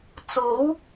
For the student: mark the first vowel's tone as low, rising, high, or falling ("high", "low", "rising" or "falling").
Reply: rising